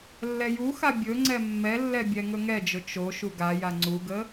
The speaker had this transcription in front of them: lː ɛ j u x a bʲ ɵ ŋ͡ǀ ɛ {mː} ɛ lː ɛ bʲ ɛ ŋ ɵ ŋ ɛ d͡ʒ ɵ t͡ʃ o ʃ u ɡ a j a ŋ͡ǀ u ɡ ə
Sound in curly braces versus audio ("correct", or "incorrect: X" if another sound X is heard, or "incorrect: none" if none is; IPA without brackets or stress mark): correct